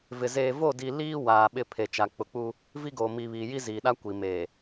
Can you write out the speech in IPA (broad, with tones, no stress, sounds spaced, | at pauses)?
v ɪ˨ z eː˨ v o˦˨ d i˨ l iː˦ w aː˨ ɓ ɪ˦˨ pʰ e˨ t͡ʃ a˨ k͡p ʊ˨ k͡p u˦ | v i˦ ɡ oː˨ m i˨ β iː˨ j i˦ z iː˨ ɗ a˦ kʷ i˨ m eː˨